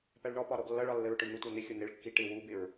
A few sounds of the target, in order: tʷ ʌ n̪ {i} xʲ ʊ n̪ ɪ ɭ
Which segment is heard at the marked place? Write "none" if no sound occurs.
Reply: ɪ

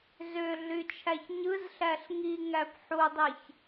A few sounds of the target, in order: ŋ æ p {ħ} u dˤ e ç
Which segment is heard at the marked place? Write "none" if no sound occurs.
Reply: ħ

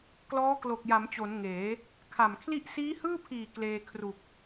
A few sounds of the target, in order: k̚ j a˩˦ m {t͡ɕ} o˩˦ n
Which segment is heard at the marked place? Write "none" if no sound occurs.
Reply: t͡ɕ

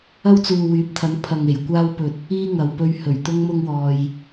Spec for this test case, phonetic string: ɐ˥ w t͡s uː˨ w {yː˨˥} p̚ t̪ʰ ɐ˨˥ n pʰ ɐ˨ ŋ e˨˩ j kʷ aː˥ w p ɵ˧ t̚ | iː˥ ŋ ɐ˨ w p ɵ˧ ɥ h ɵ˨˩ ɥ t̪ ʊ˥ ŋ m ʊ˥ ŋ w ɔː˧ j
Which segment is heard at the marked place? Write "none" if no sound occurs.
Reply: yː˨˥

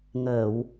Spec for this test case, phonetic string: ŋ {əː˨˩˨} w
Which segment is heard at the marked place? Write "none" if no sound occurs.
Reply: əː˨˩˨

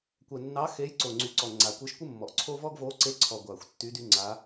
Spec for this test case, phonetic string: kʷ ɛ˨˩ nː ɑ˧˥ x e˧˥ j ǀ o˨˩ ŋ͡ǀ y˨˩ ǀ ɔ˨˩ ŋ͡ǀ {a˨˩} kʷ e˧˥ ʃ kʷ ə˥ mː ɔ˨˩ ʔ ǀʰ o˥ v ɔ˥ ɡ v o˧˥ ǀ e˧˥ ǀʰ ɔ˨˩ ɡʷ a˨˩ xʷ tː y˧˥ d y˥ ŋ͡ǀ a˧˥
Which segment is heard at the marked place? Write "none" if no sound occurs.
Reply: a˨˩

